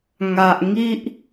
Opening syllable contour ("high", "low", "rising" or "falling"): low